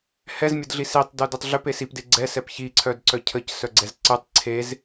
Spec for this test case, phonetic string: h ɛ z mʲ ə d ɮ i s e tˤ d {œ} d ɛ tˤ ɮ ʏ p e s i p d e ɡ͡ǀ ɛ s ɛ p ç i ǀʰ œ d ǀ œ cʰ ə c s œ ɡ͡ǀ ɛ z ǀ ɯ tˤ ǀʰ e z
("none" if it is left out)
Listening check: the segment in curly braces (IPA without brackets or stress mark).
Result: œ